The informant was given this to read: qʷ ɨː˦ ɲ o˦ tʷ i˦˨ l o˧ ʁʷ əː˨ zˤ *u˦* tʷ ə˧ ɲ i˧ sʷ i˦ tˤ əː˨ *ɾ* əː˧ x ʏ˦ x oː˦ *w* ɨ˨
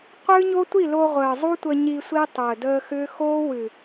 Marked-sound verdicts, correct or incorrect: correct, incorrect: d, correct

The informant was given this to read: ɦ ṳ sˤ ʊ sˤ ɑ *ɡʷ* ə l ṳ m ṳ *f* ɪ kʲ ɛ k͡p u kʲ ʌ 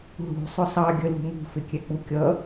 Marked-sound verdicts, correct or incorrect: incorrect: ɡʲ, correct

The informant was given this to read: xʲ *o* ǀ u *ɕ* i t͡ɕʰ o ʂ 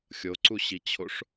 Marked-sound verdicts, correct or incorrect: correct, correct

